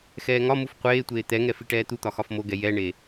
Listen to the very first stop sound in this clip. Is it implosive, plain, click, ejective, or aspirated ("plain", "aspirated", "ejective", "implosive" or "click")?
plain